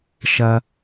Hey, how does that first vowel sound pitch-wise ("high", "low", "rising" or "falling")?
high